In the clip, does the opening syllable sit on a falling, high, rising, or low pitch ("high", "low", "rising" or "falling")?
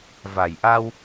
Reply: low